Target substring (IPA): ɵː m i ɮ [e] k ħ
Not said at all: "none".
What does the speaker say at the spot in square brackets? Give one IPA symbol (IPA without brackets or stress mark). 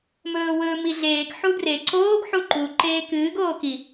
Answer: eː